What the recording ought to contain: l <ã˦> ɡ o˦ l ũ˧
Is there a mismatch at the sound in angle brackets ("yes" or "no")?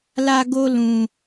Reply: yes